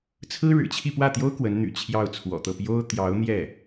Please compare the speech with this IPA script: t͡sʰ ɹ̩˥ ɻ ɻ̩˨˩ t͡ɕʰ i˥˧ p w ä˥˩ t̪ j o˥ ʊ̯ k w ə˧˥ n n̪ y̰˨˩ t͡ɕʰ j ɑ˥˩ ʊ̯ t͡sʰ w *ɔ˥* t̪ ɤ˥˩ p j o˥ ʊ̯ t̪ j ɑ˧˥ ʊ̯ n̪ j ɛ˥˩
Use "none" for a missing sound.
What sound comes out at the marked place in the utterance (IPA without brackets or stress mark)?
ɔ̰˨˩